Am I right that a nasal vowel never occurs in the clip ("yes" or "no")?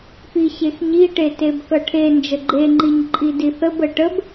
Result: yes